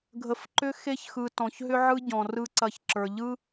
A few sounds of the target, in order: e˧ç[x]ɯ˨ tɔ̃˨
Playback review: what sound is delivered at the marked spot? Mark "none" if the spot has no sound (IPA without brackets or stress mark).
x